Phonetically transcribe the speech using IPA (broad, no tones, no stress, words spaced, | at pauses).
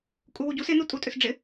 kʼuwuɟus ɪ nutʼutʼʏsɖ͡ʐɪ